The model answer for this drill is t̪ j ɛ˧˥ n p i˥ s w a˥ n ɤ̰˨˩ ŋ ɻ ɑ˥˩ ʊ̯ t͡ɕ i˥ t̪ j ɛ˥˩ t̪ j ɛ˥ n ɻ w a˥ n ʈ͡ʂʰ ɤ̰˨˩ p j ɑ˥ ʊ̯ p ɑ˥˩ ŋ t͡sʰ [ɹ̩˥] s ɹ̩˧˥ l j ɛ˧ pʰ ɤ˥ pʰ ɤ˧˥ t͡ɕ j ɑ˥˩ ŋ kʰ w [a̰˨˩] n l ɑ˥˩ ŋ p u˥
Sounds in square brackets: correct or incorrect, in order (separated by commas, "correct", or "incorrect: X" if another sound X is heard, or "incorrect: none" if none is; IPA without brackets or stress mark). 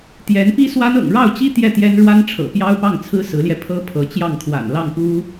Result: correct, correct